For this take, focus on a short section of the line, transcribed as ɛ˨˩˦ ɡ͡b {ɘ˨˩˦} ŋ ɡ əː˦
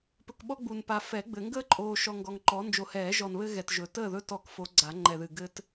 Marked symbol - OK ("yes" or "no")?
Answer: yes